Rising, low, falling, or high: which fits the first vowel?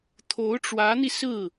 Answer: rising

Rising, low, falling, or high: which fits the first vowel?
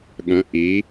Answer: rising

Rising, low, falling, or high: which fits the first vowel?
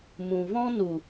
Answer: low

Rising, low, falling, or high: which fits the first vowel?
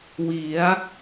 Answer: rising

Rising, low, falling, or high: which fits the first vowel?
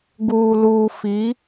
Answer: low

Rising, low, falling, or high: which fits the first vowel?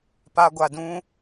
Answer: high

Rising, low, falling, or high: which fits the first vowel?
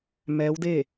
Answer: rising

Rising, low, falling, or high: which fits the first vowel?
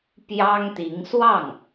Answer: high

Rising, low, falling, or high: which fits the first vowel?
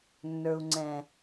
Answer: low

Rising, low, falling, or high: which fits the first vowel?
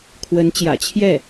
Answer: rising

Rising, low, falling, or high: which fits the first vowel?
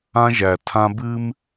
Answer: high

